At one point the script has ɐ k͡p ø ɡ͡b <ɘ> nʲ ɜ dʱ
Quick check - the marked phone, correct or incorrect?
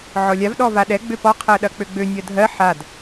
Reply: incorrect